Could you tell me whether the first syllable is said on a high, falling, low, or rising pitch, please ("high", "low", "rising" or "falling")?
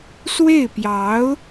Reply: falling